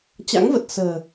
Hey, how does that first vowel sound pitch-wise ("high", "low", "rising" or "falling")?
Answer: rising